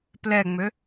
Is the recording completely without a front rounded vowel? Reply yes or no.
no